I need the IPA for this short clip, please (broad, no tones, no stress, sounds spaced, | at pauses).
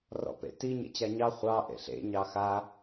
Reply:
r ɔ̰ p ḛ t i ɲ ḛ t͡ɕ a ɲ ɑ χʷ ɑ ʔ ḛ ɬ ḛ ɲ ɑ x a